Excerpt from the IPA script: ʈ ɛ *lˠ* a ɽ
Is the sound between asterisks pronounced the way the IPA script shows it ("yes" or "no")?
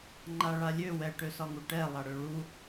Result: yes